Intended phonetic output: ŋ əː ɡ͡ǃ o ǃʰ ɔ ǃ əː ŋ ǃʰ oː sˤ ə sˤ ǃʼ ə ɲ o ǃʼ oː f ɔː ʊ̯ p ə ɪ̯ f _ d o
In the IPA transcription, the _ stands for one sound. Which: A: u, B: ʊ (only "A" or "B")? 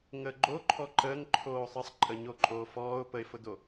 B